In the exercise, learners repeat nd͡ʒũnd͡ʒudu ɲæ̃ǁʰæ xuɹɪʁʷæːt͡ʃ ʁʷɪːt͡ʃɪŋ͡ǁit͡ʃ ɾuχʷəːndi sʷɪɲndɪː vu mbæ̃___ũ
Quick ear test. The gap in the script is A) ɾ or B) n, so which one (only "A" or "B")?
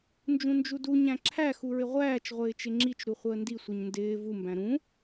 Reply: A